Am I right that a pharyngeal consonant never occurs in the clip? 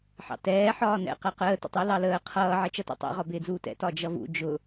no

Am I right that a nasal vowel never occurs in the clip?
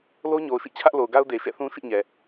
no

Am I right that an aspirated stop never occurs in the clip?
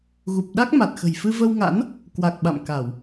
yes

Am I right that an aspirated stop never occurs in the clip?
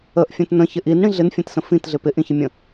yes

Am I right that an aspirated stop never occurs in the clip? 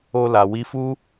yes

